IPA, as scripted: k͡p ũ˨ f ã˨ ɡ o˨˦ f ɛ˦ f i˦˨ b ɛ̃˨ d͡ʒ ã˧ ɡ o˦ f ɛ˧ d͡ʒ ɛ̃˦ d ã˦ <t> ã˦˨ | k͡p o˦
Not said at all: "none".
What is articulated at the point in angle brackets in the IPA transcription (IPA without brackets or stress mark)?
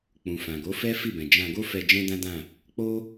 d